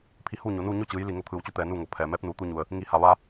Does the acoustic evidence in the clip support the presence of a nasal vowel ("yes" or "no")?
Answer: no